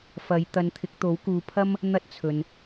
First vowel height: low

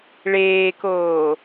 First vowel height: mid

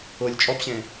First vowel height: high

